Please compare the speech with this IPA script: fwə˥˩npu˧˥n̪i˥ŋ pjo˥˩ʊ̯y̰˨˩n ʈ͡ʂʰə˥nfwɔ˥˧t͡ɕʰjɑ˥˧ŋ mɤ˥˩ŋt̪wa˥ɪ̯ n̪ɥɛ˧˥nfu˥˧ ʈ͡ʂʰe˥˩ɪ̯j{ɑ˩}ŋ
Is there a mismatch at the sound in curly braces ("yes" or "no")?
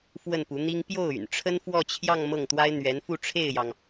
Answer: no